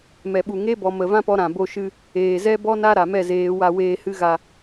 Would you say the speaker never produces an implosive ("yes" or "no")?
no